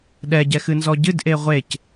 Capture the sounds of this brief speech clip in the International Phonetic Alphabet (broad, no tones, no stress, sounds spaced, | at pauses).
ɗ ɛ ɟ ɛ x ɨ n z ɔ ɟ ɨ d ʔ e ʁʷ e c